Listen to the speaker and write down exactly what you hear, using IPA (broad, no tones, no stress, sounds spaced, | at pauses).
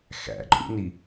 x æ̰ ǃʼ ṵ n i